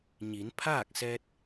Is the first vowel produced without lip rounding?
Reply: yes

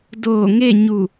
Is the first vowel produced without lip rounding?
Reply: no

